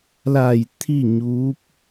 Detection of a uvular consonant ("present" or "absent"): absent